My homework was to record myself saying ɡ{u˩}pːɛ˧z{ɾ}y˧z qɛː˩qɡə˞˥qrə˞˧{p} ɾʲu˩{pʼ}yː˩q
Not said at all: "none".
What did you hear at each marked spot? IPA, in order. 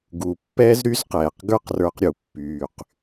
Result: u˩, ɾ, q, pː

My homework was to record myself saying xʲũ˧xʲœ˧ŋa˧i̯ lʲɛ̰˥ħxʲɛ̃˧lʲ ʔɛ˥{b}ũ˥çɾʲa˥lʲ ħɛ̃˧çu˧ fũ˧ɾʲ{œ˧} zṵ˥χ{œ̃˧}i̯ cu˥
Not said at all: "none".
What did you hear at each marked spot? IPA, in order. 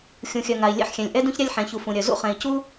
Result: d, œ˧, ɛ̃˧

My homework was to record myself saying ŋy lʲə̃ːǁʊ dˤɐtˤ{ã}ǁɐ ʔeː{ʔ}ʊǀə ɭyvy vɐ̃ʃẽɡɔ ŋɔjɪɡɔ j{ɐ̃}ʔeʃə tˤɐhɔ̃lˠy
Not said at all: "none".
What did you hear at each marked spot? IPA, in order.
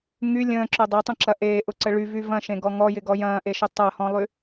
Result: ə̃, ʔ, ɐ̃ː

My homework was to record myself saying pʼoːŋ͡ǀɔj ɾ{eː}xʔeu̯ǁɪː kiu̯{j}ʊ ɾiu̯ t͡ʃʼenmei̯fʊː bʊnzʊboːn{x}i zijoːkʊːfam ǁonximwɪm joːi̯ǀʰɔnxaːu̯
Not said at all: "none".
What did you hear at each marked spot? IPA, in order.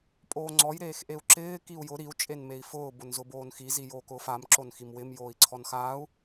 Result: eː, j, x

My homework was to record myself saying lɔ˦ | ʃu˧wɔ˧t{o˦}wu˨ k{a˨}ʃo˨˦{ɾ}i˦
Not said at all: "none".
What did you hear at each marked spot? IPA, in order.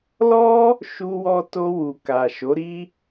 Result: o˧, a˨, ɾ

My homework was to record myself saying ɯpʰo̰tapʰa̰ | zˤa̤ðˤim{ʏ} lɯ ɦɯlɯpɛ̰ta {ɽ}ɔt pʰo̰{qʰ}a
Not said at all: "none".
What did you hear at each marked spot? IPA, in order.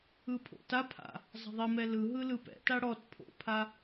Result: ɛ, ɽ, pʰ

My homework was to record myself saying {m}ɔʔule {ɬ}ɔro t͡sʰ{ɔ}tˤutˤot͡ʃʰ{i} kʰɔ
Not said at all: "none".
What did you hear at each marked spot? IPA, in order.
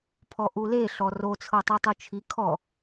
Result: pʰ, ɬ, ɤ, i

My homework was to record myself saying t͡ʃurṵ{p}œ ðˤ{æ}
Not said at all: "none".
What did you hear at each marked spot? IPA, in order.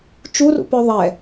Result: p, ɛ

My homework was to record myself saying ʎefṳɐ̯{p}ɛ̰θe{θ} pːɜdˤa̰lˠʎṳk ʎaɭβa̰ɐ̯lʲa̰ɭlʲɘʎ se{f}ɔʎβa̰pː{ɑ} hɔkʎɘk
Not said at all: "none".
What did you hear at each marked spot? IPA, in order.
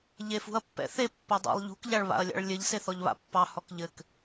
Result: pː, none, θ, ɑ

